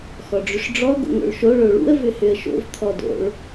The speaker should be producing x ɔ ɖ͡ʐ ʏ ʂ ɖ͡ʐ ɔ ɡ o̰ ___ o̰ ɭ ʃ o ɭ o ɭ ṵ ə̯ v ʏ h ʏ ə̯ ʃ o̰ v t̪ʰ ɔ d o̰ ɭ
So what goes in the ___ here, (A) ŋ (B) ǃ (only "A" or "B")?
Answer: A